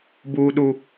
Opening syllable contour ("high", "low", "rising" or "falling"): high